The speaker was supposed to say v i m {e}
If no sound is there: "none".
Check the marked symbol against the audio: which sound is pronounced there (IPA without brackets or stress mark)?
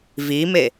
e